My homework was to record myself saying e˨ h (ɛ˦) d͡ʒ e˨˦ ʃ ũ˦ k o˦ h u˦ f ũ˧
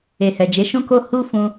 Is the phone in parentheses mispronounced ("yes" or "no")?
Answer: yes